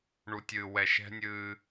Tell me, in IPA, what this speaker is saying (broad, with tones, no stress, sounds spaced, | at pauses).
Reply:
ɳ u˨ tʲ ɨː˨ w ɛ˨ ʃ ɛ̤˦ nʲ ɨː˦